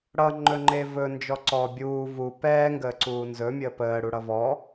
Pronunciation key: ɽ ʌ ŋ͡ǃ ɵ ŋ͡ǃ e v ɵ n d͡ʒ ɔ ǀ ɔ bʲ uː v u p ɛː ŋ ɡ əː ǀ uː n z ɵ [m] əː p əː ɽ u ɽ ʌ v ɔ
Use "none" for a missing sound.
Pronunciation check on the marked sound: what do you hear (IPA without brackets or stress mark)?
mʲ